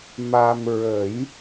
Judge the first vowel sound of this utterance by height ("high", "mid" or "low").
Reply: low